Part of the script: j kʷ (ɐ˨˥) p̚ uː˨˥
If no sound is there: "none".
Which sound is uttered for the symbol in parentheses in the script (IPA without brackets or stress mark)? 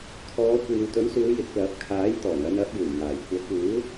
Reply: ɐ˨˥